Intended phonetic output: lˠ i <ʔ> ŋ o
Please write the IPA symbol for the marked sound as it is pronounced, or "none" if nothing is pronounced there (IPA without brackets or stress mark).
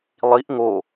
ʔ